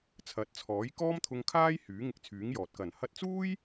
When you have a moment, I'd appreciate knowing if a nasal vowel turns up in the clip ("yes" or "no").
no